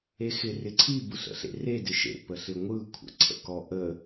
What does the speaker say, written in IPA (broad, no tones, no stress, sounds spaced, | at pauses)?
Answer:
e x ɪ r ɪ ǀʰ i b ɯ ɬ ə̰ ɬ ḛ r e d ɪ ʃ ḛ p ə ɬ ɪ ŋʷ ɯ kʷʰ ə̰ ǀʰ ə̰ k ɔ ʔ ə